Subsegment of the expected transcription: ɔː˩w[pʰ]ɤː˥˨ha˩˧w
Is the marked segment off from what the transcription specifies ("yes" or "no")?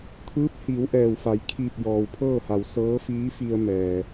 no